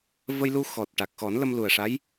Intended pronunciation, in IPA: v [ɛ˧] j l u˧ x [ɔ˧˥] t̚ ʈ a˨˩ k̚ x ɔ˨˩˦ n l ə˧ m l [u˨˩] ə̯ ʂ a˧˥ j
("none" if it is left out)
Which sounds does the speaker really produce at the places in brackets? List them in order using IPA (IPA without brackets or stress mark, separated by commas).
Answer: ə˧, ɔ˨˩, u˨˩